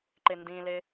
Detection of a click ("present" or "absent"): present